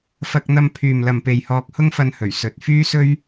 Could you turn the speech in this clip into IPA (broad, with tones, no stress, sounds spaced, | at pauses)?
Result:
f ɐ˧ k̚ n̪ ɐ˧ m pʰ yː˨ m l ɐ˨ m p e˨ j h ɔː˧ k̚ h ʊ˥ ŋ f ɐ˧ n h ɵ˨˩ ɥ s ɵ˨ t̚ f yː˥ s ɵ˥ ɥ